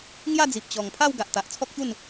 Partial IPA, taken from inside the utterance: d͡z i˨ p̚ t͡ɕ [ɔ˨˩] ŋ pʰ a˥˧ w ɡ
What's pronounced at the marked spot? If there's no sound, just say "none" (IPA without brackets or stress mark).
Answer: ɔ˨˩